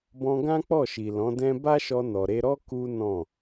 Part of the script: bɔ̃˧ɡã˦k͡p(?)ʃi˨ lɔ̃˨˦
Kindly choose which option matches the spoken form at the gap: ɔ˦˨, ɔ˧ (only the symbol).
ɔ˦˨